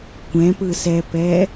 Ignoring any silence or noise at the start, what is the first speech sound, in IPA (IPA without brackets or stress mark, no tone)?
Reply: kʷ